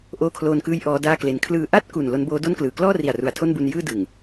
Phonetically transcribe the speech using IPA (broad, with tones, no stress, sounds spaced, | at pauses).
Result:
ʔ oː˦˥ kʰ l oː˧ n k ɯː˦˥ j ʔ ɔː˦˥ d aː˥˩ k l e˧ n kʰ l ɯː˨˩ ʔ a˥˩ t̚ k u˨˩ n l o˦˥ n b oː˦˥ d o˥˩ n k l ɯː˩˦ k l ɔː˥˩ r i˨˩ a̯ r u˩˦ a̯ tʰ o˥˩ n b u˧ n j ɯː˥˩ d ɯ˨˩ ŋ